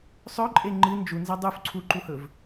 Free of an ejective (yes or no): no